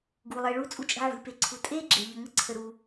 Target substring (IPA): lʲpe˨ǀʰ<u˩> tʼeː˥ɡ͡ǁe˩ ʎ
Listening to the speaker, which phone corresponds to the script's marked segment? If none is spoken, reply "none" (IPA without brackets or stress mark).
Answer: u˨